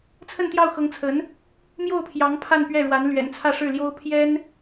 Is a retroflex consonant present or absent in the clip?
present